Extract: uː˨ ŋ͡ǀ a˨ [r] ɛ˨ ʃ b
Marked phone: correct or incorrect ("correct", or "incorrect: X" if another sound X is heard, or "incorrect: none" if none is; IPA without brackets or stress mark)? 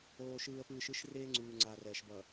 correct